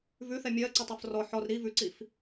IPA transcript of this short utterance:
vʉθɛ mʲɜǀətˤof rɔ ħɔr ɾi vʉǀif

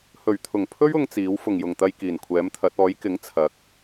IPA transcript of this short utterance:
hɵ˨˩ɥt̪ʰʊ˨˩ŋpʰɵ˥ɥ ʊ˥ŋt͡siː˨˥w fʊ˨˩ŋjʊ˨˩ŋt̪ɐ˧j kiː˨˩nkʷʰɛː˨˥mt̪ʰɐ˨˥t̚ ɔː˨˥jkɪ˨˥ŋ t͡sʰɐ˨˥k̚

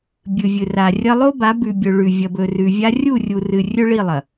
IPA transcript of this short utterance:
bʲɨ˨vʲɨ˨ra˨rʲɐ˦ lˠo˦ba˨˦ bʉ˨bʲɵ˨ ɭʉ˨ vʲɐ˨bɵ˨rʉ˨vʲa˦ rʲu˦˨rʲu˨rɨ˨ rʲɵ˦ɭi˦˨lˠɐ˨

